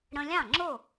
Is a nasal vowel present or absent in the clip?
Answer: present